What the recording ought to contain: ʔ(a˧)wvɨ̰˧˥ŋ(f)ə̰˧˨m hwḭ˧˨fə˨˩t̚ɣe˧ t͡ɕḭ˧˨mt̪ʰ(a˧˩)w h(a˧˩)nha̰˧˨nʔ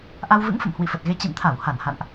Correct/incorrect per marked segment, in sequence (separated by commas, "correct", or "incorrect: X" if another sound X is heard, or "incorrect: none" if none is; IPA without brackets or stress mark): correct, correct, correct, correct